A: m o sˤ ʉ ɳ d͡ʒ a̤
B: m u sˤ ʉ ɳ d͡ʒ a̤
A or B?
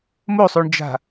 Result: A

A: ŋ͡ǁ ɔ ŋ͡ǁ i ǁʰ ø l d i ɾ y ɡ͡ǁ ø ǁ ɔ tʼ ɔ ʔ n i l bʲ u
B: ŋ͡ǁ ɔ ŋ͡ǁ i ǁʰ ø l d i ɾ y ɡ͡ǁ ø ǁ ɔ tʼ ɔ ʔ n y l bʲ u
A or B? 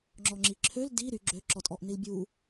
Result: A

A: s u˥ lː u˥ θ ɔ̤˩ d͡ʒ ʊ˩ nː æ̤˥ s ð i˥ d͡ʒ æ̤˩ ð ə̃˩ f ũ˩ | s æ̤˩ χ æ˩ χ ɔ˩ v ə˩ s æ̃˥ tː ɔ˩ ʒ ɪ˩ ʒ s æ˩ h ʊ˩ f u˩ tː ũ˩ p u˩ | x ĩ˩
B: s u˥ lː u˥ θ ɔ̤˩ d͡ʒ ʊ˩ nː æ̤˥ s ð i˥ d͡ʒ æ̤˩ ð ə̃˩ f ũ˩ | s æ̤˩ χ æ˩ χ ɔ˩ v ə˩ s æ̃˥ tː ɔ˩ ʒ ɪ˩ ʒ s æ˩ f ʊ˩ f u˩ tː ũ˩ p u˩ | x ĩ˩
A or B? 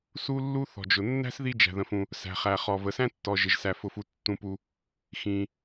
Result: B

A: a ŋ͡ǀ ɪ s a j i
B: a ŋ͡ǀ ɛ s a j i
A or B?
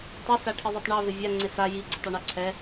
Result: A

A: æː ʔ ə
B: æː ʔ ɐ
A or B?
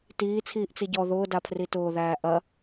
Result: B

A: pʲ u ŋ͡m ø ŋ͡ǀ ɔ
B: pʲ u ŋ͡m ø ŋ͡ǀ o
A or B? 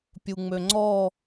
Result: A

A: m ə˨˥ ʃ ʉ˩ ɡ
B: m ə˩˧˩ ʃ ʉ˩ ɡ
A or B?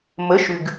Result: B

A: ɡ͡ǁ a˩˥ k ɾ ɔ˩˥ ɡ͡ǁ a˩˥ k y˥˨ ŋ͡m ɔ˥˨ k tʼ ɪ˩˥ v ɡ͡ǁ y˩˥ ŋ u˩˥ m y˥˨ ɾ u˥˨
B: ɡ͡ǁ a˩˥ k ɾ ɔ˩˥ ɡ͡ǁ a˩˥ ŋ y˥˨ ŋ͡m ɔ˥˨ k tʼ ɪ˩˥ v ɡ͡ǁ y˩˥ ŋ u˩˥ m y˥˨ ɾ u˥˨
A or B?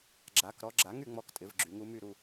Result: B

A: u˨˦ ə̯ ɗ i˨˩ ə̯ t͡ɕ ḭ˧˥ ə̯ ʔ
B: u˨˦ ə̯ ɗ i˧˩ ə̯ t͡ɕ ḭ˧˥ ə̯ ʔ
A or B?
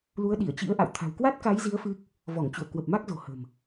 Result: B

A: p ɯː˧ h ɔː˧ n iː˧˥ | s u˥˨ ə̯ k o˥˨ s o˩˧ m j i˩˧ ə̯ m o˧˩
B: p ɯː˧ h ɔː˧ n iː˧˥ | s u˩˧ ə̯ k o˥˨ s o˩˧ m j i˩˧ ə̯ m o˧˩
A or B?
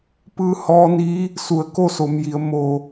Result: B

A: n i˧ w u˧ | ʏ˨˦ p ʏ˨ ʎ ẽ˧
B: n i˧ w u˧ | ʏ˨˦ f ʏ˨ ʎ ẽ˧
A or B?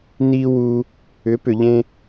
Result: A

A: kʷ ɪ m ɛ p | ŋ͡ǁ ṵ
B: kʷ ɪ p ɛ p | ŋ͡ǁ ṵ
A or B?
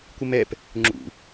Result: A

